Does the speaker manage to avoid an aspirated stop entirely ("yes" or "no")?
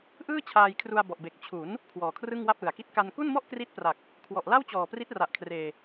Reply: no